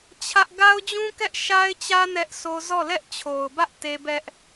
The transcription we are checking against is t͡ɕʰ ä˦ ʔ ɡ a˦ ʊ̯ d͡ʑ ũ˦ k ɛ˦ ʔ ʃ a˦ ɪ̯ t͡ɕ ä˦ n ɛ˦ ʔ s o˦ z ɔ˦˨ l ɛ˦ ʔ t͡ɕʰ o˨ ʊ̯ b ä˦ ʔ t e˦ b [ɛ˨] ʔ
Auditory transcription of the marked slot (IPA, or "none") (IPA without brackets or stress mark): ɛ˦